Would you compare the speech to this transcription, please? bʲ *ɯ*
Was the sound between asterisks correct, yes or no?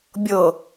no